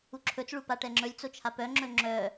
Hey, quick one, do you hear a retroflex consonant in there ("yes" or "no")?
yes